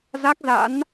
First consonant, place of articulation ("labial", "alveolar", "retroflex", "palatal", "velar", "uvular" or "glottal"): alveolar